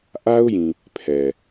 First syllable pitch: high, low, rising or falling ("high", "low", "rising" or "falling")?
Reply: high